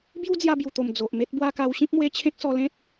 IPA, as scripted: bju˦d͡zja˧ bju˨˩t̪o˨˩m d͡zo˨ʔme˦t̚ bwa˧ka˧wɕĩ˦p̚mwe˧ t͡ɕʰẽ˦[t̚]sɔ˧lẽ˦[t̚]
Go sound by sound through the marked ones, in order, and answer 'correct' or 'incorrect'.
incorrect: k̚, correct

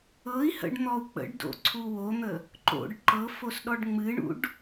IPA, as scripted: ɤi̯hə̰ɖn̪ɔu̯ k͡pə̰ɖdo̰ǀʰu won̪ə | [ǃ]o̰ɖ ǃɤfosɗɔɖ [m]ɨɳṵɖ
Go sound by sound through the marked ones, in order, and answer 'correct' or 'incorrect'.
correct, incorrect: ŋ͡m

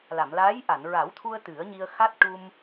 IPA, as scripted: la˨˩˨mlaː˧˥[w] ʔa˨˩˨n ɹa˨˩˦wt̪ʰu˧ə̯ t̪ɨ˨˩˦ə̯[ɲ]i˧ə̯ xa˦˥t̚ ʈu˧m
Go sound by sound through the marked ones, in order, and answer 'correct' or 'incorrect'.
incorrect: j, correct

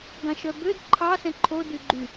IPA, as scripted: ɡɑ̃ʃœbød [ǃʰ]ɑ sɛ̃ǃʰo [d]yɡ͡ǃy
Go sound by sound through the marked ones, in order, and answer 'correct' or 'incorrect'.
correct, correct

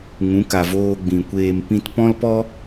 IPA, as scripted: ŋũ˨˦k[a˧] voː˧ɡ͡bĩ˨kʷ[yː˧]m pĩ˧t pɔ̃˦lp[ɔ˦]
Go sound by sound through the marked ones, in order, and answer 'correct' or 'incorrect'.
incorrect: a˨, incorrect: eː˧, correct

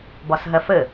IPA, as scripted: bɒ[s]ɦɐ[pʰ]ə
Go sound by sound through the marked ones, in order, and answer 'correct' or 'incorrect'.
correct, incorrect: f

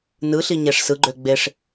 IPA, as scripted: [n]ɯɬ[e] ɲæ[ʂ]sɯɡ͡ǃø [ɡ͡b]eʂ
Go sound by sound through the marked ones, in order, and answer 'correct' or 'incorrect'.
correct, incorrect: i, correct, correct

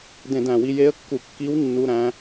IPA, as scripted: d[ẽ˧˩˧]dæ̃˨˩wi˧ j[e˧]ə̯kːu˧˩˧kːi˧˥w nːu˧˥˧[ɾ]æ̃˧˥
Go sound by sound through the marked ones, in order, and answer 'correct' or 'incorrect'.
correct, incorrect: e˧˥, correct

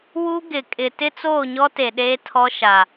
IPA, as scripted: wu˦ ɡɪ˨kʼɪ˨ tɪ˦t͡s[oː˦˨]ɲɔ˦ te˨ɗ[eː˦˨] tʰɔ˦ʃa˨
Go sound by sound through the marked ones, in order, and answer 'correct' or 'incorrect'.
correct, incorrect: eː˦

